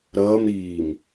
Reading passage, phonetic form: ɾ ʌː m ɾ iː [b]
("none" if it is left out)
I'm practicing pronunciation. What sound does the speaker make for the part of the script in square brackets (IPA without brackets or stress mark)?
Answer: m